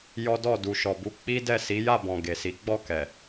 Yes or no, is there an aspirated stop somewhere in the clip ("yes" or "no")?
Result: no